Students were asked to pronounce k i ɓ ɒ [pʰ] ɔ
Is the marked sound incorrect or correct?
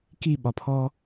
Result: correct